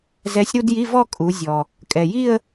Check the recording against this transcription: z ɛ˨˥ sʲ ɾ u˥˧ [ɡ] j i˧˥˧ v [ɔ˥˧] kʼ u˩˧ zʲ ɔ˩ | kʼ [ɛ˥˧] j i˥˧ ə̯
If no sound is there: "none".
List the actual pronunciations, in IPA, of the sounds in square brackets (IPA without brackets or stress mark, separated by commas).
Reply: d, ɔ˥˧, ɛ˩